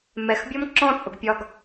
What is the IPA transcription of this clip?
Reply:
m ɛ x bʲ ɔ m ǁ ɔ̃ t͡sʼ ʊ ɡ pʲ ɒ ɡ

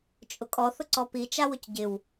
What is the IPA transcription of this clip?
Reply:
t͡ʃʼ ʊ kʼ ɔ θ ʊ ǀ ɔ p i t͡ʃ a w ʊ c ɟ ɪ w

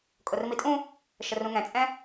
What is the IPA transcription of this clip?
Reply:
kʼ o r m i tʼ ũ | ʃ ə r ũ ŋ ɛ̃ t͡sʼ ɛ̃

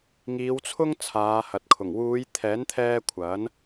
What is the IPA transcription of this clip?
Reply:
ŋ iː˨˧ w t͡sʰ ʊ˥ ŋ t͡sʰ aː˨˧ h ɐ˨ t̚ kʰ ʊ˨˩ ŋ w uː˨˧ j t̪ʰ ɛː˨˥ n t̪ʰ ɛː˧ kʷʰ ɐ˨˥ n

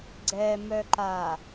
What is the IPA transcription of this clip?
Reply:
ɡ͡ǀ ɛ m œ ǃ a

